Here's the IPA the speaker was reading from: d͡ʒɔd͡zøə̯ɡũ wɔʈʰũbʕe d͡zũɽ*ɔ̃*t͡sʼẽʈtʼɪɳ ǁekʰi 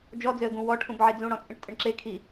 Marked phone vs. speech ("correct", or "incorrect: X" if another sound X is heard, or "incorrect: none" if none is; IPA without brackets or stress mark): correct